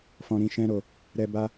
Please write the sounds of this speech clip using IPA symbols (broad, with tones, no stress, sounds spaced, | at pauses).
f ɔ̃˧ ɾ ĩ˧ ʃ ɛ̃˦ ɾ o˧ | ɾ ɛ˧ b a˦